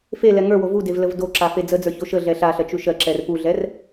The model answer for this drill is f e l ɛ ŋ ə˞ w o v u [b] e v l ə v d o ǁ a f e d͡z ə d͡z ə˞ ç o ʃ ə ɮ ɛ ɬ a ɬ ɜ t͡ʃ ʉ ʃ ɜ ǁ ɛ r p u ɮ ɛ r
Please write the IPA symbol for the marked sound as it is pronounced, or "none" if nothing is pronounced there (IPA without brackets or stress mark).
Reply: d